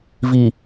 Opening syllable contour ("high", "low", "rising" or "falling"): low